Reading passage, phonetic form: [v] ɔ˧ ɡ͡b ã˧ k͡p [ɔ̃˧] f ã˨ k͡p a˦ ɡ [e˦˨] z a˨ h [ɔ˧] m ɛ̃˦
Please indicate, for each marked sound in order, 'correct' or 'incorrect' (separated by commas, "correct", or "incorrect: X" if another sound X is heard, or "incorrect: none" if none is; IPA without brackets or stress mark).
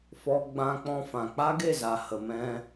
incorrect: f, correct, correct, incorrect: ə˧